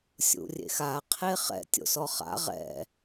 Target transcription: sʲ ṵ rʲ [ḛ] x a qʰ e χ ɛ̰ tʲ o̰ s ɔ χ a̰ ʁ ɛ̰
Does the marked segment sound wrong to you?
no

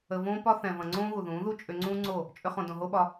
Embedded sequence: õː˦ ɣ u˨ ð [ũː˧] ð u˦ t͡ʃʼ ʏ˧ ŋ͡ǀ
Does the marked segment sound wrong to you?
yes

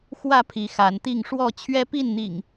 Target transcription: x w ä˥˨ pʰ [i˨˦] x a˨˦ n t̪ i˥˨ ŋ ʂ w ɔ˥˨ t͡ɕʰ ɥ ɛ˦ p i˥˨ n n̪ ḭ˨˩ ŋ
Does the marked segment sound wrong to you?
no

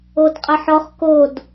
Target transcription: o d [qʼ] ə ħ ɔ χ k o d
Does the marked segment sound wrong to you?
no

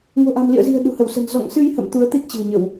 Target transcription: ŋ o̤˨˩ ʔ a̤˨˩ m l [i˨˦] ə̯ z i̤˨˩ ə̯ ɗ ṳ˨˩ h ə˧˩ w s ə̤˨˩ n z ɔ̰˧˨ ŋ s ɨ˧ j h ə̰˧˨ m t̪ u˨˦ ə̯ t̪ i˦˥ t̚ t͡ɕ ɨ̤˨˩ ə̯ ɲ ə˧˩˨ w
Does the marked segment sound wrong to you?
yes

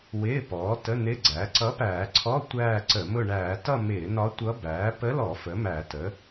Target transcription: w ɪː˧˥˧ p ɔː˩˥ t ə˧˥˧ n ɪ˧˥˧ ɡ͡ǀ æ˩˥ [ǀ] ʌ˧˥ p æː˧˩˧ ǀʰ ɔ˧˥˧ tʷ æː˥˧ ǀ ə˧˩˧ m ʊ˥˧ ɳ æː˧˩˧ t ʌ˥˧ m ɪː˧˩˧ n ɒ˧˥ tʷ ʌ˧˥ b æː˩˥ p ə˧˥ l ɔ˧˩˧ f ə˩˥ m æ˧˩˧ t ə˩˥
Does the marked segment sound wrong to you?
no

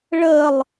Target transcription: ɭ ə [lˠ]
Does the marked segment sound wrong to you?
no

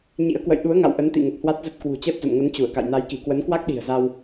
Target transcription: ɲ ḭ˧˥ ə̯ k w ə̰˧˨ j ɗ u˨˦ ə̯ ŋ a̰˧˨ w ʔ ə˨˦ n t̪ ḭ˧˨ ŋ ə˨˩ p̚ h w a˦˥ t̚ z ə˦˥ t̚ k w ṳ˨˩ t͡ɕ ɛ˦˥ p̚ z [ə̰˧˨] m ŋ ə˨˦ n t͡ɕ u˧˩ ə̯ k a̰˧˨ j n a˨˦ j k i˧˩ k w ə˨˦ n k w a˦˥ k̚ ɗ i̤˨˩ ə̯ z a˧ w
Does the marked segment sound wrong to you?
no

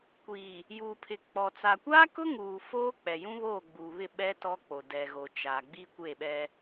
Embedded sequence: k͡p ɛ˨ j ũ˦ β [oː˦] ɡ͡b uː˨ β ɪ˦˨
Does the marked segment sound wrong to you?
yes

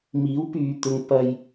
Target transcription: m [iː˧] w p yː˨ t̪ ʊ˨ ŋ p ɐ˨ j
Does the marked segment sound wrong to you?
yes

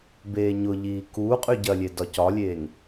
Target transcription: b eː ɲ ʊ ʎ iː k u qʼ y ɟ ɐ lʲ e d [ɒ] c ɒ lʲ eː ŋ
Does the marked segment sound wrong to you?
no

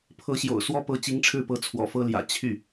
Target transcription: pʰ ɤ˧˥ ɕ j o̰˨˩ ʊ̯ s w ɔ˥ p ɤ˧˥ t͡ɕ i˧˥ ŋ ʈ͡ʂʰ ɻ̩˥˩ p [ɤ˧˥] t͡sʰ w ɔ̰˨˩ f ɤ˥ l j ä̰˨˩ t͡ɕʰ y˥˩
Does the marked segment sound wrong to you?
no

